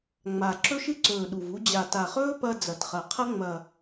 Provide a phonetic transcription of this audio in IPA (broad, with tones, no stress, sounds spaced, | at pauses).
ŋ͡m a˨˩ ǁ ɵ˦ ʃ ɨ˦ ǀ ɵː˨˩ ɗ u˨˩ v u˦ d͡ʑ a˨˩ t a˨˩ χ ɵː˦ p ɐ˦ d͡z ɐ˨˩ t χ ɐ˨˩ qʰ ɐ˦ ŋ͡m ɐ˨˩